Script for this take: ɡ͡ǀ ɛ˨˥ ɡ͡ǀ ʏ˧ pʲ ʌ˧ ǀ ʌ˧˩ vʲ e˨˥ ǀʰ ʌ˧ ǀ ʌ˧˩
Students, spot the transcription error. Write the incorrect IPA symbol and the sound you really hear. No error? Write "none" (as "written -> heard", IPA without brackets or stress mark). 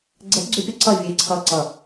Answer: none